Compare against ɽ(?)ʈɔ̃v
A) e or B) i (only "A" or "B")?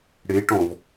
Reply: A